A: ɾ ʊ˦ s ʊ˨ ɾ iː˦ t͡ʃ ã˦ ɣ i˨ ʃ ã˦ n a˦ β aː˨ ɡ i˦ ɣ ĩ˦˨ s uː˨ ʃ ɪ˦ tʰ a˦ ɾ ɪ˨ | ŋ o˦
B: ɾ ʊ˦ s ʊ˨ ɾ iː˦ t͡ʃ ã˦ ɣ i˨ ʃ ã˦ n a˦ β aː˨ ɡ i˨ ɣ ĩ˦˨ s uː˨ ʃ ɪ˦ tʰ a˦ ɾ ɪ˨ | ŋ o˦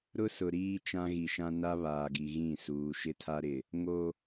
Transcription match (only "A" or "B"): B